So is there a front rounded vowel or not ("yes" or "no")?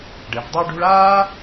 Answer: no